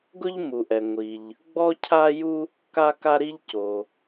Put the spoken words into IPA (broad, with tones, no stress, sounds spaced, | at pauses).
ɡ ʊ˥ ʎ m u˩ ʔ ɛ˩ ŋʷ i˩ ʎ | ɡ͡b ɔ˥ cʰ a˥ j u˥ | k a˥ k a˥ ɾ i˥ ʎ c o˩